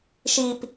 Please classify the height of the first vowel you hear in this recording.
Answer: high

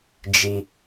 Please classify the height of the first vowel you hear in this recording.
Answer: high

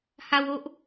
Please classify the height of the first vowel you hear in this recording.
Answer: low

